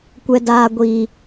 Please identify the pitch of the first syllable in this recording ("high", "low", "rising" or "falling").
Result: low